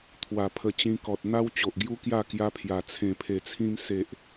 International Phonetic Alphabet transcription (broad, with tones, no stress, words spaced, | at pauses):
t̪ʰwa˨˩pʰə˧t͡ɕĩ˧kɔ˨t̚ n̪a˦wt͡ɕo˨ʔɡju˦kja˥˧ kja˧ pʰja˨˩ t͡sʰẽ˨˩pʰe˨˩t͡sʰĩ˧m se˨ʔ